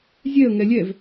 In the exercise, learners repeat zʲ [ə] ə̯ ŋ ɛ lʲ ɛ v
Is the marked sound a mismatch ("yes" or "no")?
yes